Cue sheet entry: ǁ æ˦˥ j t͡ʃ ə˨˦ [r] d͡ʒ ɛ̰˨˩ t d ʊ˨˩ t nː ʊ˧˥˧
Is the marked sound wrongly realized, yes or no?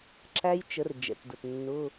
no